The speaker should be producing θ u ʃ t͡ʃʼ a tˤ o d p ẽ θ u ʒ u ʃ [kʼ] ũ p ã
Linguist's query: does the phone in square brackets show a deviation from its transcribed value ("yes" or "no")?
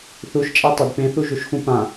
yes